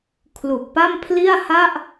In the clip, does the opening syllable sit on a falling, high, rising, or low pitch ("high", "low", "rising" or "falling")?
low